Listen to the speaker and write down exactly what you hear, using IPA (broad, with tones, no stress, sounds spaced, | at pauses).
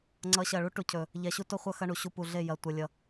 ŋ͡ǀ ʌ˨˦ ɕ ɐ˨ ɭ u˦ ʈ u˨ cʰ ɵ˨ | ʎ ɛ˨ ɕ u˦ t o˦ χʷ ʌ˦ x ɐ˦ ɳ u˨ ɕ u˦ p u˨ ɮ e˦˨ j ɐ˨ tʷ ʌ˨ lʲ ʌ˦